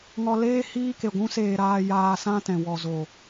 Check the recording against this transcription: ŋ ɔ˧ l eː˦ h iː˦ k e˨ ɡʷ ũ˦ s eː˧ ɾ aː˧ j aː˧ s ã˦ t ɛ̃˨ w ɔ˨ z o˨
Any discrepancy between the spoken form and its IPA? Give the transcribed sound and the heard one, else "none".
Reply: none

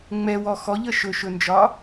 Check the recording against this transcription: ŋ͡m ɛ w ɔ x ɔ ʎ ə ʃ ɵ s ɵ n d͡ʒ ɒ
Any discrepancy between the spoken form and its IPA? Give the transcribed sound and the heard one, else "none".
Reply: s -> ʃ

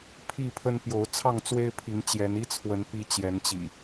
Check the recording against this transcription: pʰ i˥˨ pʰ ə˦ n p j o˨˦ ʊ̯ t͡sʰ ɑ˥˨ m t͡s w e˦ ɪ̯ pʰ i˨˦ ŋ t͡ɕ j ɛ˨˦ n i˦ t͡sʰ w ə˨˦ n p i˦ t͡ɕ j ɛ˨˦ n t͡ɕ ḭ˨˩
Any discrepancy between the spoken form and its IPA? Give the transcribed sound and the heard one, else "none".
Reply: m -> ŋ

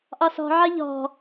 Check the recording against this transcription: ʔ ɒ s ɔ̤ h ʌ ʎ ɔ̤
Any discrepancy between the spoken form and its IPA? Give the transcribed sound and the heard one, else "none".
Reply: h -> ʕ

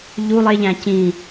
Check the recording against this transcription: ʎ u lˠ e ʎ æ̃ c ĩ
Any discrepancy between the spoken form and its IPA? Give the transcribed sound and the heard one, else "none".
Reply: none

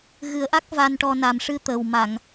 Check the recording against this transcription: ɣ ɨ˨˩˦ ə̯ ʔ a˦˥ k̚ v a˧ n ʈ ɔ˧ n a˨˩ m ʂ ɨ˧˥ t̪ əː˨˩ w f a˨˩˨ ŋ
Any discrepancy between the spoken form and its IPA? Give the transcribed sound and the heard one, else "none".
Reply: f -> m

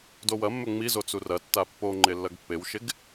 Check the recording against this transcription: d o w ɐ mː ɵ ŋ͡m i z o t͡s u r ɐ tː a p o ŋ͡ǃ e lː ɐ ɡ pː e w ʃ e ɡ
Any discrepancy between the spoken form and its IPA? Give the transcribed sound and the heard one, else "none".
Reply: p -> pː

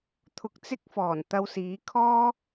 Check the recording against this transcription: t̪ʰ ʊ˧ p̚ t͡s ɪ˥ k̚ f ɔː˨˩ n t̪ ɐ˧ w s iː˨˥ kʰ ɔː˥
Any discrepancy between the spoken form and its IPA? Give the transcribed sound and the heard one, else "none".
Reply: p̚ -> k̚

